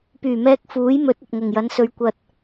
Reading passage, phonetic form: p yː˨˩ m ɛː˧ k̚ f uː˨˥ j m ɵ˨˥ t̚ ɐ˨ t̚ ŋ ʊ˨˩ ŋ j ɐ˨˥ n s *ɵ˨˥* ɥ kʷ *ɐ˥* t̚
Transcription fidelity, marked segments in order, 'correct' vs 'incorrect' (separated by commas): incorrect, incorrect